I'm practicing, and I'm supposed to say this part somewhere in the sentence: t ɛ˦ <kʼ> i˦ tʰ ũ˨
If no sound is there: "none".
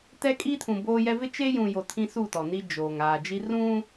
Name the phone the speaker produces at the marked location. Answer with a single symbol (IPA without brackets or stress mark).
kʼ